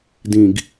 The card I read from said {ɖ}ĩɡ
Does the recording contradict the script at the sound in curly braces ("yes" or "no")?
yes